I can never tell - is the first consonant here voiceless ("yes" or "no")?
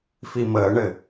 yes